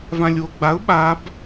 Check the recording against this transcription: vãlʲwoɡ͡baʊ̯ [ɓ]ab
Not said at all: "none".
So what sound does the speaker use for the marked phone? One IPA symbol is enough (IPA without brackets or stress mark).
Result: ɓ